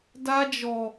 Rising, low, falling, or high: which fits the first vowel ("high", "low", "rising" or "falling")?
high